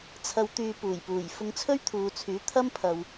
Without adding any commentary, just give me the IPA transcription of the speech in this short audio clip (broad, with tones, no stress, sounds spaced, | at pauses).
t͡sʰ ɐ˨ w t̪ yː˨ p uː˨˩ j p uː˨˩ j f ʊ˧ ŋ t͡sʰ ɵ˥ ɥ t̪ʰ uː˨ t͡sʰ yː˨˥ t̪ʰ ɐ˥ m pʰ ɐ˧ w